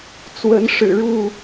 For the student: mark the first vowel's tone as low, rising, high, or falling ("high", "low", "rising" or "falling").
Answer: rising